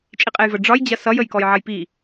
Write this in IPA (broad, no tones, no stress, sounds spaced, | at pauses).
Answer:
t͡ʃʼ i qʼ e j v ə ɖ͡ʐ ɒ j d͡ʑ ɐ s ʌ j ə j k ɔ j ʕ ɐ j p i